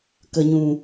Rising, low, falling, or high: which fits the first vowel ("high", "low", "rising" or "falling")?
low